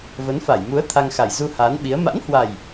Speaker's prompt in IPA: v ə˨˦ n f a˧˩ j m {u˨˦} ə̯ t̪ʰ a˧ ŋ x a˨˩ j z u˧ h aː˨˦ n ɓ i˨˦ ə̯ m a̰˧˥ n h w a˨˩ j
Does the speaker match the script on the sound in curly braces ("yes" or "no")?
yes